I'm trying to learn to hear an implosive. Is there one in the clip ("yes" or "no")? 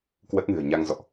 no